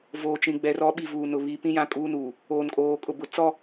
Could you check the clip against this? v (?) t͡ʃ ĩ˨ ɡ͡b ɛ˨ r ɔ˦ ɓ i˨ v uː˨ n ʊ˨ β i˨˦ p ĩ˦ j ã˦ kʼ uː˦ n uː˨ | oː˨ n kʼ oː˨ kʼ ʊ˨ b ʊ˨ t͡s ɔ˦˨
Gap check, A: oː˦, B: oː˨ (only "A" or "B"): B